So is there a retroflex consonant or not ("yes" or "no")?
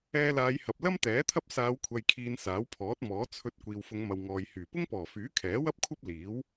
no